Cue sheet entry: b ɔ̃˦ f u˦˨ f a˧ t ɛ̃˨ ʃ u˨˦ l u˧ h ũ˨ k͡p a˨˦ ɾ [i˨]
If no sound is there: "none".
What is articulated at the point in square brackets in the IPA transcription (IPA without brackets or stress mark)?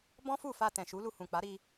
i˧